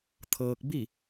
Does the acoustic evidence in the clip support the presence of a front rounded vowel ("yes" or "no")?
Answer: no